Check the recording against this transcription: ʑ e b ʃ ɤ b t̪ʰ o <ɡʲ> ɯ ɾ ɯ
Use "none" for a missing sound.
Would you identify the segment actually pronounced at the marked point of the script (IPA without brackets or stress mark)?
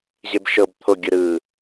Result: ɡʲ